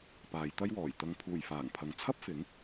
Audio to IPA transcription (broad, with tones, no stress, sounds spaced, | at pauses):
p aː˨˧ j t̪ ɐ˥ j w ɔː˨˩ j t̪ ɐ˨ ŋ pʰ uː˨˩ j f aː˨˩ ŋ pʰ ɐ˨ ŋ t͡sʰ ɐ˥ p̚ f ɪ˨˥ ŋ